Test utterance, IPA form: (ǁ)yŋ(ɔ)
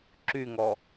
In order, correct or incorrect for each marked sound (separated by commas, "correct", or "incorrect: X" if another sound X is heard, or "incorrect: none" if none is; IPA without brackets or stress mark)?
correct, correct